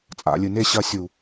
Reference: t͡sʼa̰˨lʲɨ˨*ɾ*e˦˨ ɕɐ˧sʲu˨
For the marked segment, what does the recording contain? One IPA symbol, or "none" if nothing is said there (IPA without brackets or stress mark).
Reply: n